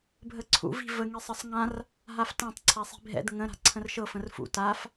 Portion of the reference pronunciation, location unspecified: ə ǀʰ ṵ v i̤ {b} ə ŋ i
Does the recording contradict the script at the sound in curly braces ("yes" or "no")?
yes